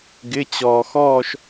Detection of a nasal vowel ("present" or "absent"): absent